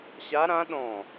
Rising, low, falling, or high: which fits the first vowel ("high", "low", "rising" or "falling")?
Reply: rising